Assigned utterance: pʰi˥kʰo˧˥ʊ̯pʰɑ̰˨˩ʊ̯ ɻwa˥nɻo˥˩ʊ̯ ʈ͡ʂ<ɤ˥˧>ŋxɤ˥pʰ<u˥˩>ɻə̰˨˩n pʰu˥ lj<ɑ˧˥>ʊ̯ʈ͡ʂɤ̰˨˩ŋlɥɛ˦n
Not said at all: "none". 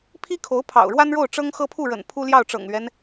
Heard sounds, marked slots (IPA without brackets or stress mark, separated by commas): ɤ˥, u˥˩, ɑ˥˩